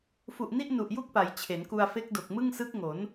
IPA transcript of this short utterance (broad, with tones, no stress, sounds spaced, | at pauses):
f u˨˩ ʔ n i˥˩ ʔ n u˨˩ ʔ j u˥˩ k̚ p a˩˦ j t͡ɕʰ e˩˦ n k u˧ a̯ f e˦˥ k̚ d o˨˩ k̚ m ɯ˥˩ ŋ s ɯ˦˥ k̚ ŋ o˩˦ n